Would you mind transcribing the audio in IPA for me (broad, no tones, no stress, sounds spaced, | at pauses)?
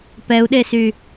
p ɛ u̯ ɗ e s y